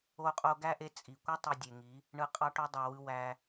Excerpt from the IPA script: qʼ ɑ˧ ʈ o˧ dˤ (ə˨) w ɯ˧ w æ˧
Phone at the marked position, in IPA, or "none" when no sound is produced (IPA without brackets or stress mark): ɑ˨